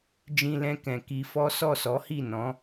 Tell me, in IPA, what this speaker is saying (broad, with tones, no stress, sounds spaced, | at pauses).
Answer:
d͡ʒ ĩ˧ l ɛ̃˧ k ɛ̃˨ k i˧ f ɔ˦ s ɔ˦˨ s ɔ˨˦ h i˦˨ n ɔ̃˨˦